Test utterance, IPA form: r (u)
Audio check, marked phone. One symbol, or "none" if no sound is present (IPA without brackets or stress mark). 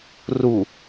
u